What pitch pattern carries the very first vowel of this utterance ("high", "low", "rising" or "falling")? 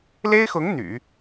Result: high